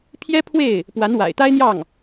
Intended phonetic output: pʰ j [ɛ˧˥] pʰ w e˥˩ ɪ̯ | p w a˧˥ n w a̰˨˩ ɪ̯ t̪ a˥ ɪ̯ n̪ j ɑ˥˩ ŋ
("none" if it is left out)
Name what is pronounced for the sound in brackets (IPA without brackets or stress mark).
ɛ˥